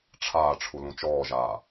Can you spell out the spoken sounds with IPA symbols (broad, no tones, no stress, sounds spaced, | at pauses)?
ʈ͡ʂʰ aː ʈ͡ʂʰ u l ũ t͡ʃ ɔː ʒ aː